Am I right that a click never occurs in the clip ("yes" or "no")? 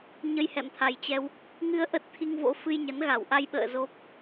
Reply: yes